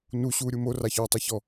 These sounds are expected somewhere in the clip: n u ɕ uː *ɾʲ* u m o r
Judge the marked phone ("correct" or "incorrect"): correct